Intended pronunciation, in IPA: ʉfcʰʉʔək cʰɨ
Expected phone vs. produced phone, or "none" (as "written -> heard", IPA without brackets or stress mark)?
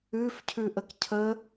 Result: ɨ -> ə